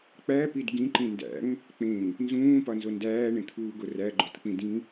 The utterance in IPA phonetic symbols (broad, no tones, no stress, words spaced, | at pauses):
k͡pæpid ɡĩǃĩ ndæ̰ŋ | k͡pẽŋ | nzũːpɒnzo ndæːɳẽt̪ʰuːɡo ræɡ͡ǃotk͡pĩ dĩ